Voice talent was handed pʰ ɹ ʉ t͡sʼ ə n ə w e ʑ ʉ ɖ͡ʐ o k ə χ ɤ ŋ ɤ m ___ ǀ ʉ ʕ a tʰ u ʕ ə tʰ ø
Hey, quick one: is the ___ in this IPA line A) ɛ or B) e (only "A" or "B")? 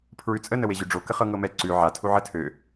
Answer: A